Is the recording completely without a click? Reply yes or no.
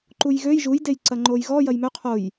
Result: no